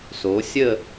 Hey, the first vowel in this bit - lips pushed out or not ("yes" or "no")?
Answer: yes